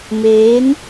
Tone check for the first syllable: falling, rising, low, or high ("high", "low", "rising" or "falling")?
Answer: rising